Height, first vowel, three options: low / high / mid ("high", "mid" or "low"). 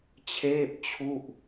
mid